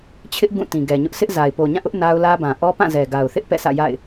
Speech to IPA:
t͡ɕʰ ɪ˦ ʔ ɡ ũ˦˨ t ĩ˨ ɡ ɛ˨ ɲ ʊ˦ ʔ sʰ ɪ˦ ʔ z a˨ ɪ̯ p o˨ ɲ ã˦˨ ʔ ʊ˦ ʔ n a˦ ʊ̯ l ä˦ b ã˨ ʔ ɔ˦ p ã˦˨ z ɛ˨ ɡ a˨ ʊ̯ θ ɪ˦ ʔ p ɛ̰˦˨ s ä̰˦˨ j a̰˦˨ ɪ̯

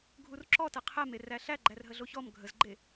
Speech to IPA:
ɡʱ u r ǁ ɔ t ɛ qʰ ɛ m e r æ ɬ æ ɡ͡ǃ æ r ɦ ə ɮ o ç ɔ m ɡʱ ə z ɡ͡ǃ e

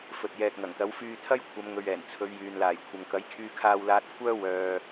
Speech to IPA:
f ɵ˨ t̚ j ɛː˨ k̚ ŋ ɐ˨˩ ŋ t̪ ɐ˨˥ w f yː˧ t̪ʰ ɐ˥ j kʷʰ ɐ˨˧ m ŋ ɵ˨ ɥ ɛː˨˩ n t͡sʰ ɵ˨˧ ɥ j yː˨ n l aː˨˩ j kʷʰ ɐ˨ ŋ k ɐ˨˥ j kʰ yː˧ kʰ aː˧ w l aː˧ t̚ kʷʰ œː˥ w œː˧

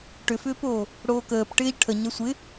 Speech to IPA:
ʈ ʏ f ʏː p oː | ɽ oː k əː p ʈ ɪː ʎ ʈʰ ə ɲ ɐ sʷ ɪ

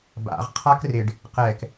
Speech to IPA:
b a̰ ʁ qʰ a k r ɪ ɖ | q ɛ k

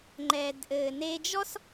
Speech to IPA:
ŋ͡ǃ ɛː˩ d ʔ ɘː˩ n e˧ d͡ʒ ɔ˥ s

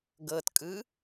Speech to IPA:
ɡ ɤ t kʼ ɯ

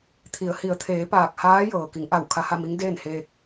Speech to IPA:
t̪ʰ i˩˧ ə̯ h i˩˧ ə̯ t̪ʰ eː˩˧ p aː˧˩ k̚ h aː˧˥ j ɤː˩ k i˩˧ ŋ ʔ a˧˩ w kʰ a˧ h a˥˨ m i˧˥ ŋ d eː˥˨ n h eː˧ k̚

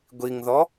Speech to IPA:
ɡʷ i ŋ ð ɔ

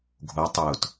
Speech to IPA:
ɡʱ o tˤ ʊː t

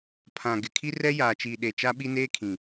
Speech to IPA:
pʰ ã˨ ɡ ɪ˨ kʰ i˦ r ɛ˦ j aː˨ t͡ʃ iː˨ ɗ e˨ t͡ʃ a˦ ɓ i˦ n eː˦ kʰ ĩ˨

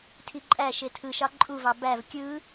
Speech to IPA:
tʰ i ǃʼ æ ʃ e tʰ ɯ ʃ ɑ ǃʼ u v ɑ b æ v kʲ ɯ

